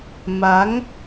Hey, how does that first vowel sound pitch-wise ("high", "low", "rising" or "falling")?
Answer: rising